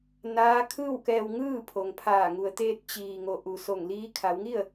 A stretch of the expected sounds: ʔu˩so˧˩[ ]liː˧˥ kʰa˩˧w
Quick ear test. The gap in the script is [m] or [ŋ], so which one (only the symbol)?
ŋ